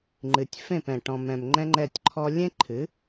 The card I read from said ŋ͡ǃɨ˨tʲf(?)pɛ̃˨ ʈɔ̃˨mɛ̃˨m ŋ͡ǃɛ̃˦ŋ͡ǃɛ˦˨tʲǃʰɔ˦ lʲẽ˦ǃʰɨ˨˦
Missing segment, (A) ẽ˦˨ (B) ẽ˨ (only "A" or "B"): A